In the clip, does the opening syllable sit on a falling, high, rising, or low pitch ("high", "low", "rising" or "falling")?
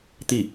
falling